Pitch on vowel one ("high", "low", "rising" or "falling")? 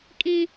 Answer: high